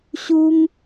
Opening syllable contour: high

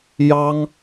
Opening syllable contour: high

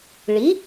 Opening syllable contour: rising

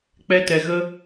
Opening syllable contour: high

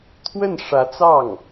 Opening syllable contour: falling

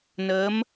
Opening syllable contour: rising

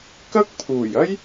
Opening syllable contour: high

